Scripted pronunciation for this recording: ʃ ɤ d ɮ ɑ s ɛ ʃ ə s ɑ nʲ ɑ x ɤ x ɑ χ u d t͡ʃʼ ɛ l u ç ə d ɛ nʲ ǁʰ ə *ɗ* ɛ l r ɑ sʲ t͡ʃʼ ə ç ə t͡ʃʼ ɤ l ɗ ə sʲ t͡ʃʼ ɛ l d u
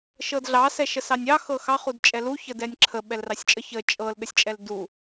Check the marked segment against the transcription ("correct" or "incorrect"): incorrect